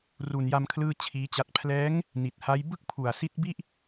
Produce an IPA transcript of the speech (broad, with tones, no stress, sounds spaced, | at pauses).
r u˨˩ n j a˧ m kʰ l ɯː˥˩ t͡ɕʰ iː˦˥ t͡ɕ a˦˥ t̚ pʰ l ɛː˦˥ ŋ | n i˨˩ t̚ h a˦˥ j b ɯ˥˩ k̚ pʰ u˨˩ a̯ s i˦˥ t̚ b i˥˩ ʔ